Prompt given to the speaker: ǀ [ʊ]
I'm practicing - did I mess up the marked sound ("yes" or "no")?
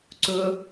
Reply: no